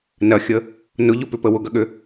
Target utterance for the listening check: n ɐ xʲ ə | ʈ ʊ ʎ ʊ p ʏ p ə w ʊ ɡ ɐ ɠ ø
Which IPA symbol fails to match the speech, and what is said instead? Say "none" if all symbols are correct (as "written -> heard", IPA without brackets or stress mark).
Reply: ʈ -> n